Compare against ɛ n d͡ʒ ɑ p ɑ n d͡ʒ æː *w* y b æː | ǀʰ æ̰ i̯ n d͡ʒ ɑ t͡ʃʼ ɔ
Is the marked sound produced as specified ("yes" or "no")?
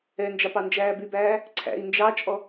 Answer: no